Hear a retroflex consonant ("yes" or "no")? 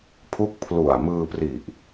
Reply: no